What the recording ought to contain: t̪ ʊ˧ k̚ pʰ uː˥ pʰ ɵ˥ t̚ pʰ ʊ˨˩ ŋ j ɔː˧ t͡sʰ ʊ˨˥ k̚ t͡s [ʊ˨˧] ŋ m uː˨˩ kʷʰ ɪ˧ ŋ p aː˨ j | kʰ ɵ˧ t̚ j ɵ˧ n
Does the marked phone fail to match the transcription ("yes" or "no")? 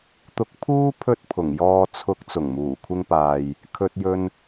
yes